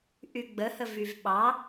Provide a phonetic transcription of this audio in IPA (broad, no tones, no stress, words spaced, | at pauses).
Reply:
ʔyɡ͡bəhə vyvɓɑ